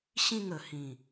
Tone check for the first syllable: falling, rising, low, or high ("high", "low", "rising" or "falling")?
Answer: falling